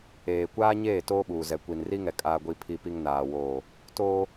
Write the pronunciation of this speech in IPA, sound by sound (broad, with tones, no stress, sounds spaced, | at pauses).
eː˨ kʷ aː˦ ɲ eː˦˨ t oː˦ ɓ uː˨ z ɛ˨ kʷ i˨ n r i˦ ŋ ɛ˨ kʼ aː˨ ɡʷ i˨ pʰ i˨ p i˨ ŋ n aː˨ w oː˨ | t oː˦